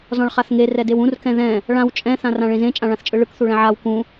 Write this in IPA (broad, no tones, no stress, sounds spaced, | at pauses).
z ɔ̃ ɭ χ a θ ŋ e r ɛ d e w ũ r k ɛ̃ ð ɛ̃ | ɭ ã w t͡ʃʼ ɛ̃ θ ã r ã ɭ ẽ z ẽ t͡ʃʼ ã ɭ ã θ t͡ʃʼ ɯ ɭ ɯ k θ u ɭ ɛ̃ ʕ a w k ũ